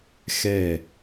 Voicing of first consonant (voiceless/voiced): voiceless